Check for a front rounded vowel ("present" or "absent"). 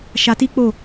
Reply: absent